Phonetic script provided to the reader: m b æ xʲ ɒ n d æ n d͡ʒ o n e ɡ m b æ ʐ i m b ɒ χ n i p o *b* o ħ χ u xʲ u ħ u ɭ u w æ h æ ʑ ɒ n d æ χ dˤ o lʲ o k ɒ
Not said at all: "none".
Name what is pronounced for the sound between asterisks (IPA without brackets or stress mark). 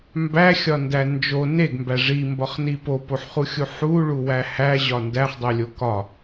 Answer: p